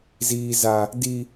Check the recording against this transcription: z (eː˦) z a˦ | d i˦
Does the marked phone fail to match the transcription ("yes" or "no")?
yes